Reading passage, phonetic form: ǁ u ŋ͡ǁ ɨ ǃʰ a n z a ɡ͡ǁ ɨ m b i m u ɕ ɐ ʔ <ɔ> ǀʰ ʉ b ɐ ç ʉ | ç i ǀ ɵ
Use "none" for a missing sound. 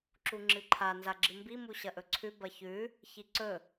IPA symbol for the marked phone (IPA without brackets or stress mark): ɵ